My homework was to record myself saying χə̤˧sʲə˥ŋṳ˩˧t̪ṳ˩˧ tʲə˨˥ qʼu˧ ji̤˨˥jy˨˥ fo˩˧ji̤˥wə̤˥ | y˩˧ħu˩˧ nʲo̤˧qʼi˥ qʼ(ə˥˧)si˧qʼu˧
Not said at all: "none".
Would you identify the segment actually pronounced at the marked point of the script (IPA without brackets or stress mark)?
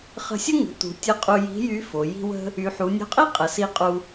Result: ə˨˩